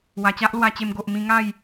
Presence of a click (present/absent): absent